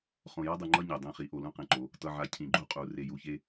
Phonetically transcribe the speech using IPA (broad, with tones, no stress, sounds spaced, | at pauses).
χ õ˨ j a˦ dˤ ɯ˨ ŋ͡ǃ ʌ˦ ɲ ɛ˨ dˤ ẽ˦ χ i˨˦ ʔ o˨ l ũ˦ q ẽ˨ ǃ o˨˦ | t ʌ˨ ʕ a˨ cʰ ĩ˨ ɡ͡ǃ u˦˨ qʼ u˨ r e˨ j u˨ ç e˦